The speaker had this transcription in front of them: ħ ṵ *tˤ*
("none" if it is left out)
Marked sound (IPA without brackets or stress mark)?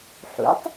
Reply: tˤ